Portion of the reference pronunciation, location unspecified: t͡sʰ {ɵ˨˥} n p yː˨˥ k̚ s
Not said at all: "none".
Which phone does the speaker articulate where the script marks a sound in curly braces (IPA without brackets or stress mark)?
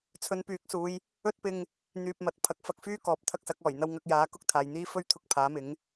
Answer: ɵ˧